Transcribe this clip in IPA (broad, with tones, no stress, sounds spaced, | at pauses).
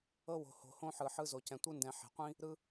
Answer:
ɤ˦ w o̤˨ h o̤˨ h õ˦ ħ ɯ˨ ħ ɯ˦ z o˨ c ɛ̃˨ tʷ ɯ˦ n d ɛ̃˨ ħ e̤˨ qʷ ĩ˦ | ɾ ɯ˦